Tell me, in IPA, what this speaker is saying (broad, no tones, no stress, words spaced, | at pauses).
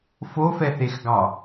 fofɛθexɡɑ